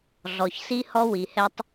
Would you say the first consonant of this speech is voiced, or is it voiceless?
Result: voiced